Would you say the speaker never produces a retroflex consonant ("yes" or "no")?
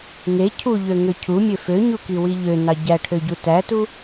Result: no